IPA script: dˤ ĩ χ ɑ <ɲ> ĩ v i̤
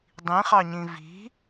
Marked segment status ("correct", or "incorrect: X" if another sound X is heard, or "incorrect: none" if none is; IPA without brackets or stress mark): correct